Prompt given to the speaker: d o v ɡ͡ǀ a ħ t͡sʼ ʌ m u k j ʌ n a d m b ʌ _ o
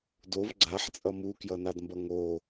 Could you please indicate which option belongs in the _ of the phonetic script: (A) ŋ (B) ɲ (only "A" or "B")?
A